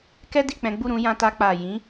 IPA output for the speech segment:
kɛ˦ di˦˨k͡pɛ̃˨˦ ɡ͡bu˦˨ɾũ˧ jã˧ta˧ k͡pa˨jĩ˨˦

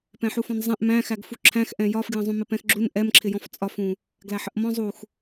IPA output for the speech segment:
pɛ̃ħufɔ̃nzˤɛ̃ʔ mæ̃xæɡ fuǁʰæ̃xʔɛ̃ jɒfɡjə̃ zˤũmɪpɛ̃xɡ͡ǁun ʔɛmǁʰɪjɔ̃f t͡sʼɒfũ | ɡlæħəʔmɔ̃ zˤux

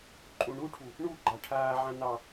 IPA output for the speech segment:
ǃʼũɳuʈʰu | ɳu ɡ͡ǃaʈʰaːʕã nɑ

